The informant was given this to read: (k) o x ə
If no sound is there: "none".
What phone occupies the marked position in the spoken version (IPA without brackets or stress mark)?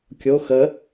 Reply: kʲ